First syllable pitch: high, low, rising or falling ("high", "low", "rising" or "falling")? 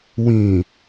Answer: low